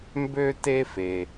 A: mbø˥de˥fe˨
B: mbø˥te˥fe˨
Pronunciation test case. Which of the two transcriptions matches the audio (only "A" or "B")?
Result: B